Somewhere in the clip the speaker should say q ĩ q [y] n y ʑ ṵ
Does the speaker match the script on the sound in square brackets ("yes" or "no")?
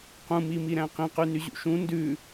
yes